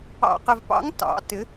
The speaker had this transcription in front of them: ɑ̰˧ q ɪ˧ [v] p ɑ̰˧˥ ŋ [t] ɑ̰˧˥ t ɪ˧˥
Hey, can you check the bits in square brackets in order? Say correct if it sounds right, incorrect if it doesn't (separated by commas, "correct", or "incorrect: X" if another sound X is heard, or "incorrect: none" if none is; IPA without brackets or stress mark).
correct, correct